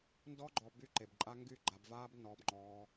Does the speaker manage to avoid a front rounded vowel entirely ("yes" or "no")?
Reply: no